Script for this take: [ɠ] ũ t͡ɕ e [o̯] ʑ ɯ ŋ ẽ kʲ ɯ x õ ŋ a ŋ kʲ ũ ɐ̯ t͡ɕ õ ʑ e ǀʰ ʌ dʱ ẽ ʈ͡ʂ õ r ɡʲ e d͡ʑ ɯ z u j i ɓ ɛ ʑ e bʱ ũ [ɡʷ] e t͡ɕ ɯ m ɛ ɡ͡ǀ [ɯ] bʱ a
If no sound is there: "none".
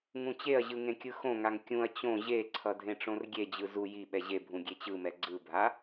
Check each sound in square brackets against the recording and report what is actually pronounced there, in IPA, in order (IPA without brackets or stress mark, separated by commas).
ŋ, ɐ̯, ɡʲ, ɯ